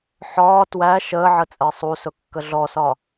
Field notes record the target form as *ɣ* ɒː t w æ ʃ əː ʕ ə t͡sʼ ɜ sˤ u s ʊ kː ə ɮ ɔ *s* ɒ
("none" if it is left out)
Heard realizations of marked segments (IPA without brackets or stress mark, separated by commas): ħ, s